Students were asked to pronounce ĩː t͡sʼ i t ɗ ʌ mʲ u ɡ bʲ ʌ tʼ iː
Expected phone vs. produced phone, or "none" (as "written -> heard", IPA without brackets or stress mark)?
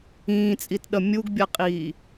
tʼ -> qʼ